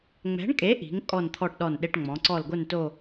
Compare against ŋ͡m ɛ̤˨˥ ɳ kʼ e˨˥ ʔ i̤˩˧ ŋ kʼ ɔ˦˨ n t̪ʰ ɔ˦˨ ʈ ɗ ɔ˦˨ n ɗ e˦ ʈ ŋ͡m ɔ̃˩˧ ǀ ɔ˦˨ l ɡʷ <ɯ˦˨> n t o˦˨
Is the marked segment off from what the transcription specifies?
no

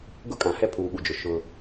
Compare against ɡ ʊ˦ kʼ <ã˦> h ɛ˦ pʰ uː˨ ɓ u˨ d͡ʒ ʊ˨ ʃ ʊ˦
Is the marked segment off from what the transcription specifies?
yes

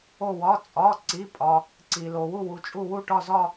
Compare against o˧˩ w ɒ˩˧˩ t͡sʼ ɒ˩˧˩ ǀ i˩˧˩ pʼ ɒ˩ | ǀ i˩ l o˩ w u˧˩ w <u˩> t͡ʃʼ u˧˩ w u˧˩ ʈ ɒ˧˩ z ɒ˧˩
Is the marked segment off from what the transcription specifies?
no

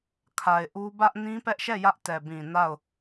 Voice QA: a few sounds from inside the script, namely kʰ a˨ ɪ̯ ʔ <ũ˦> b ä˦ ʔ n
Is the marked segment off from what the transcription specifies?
yes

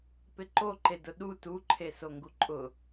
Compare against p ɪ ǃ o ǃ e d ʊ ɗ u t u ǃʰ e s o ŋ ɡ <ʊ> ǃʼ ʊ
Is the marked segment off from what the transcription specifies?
yes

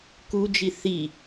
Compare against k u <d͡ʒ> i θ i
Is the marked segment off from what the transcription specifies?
no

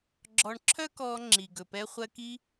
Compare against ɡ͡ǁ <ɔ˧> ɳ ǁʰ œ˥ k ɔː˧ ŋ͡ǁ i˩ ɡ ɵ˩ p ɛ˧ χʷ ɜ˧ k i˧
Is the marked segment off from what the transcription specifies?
no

